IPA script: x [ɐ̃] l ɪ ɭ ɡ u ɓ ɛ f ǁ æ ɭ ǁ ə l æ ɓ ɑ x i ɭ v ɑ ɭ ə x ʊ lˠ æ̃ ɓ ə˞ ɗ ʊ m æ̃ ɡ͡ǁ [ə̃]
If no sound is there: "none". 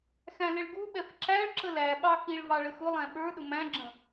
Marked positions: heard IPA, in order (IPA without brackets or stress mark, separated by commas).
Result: æ̃, ə̃